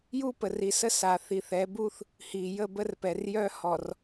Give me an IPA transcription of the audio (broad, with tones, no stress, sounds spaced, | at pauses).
j u˦ p ə˨ r i˨ s ə˦ s a˨ θ i˨ θ ɛ˨˦ b u˦ θ | h i˨ j ə˦˨ b ə˦ r p ɛ˨ r j œ˦ h ɔ˨ r